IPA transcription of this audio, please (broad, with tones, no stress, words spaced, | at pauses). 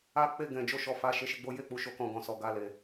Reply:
a˧k͡pe˧ ɡɛ̃˨ d͡ʒo˧ʃɔ˨ fa˨ ʃe˨˦ʃi˦˨ɡ͡bo˨˦ je˦˨ k͡pu˨˦ʃo˦˨kɔ̃˧ ɡɔ̃˨sɔ˨ ɡa˧le˨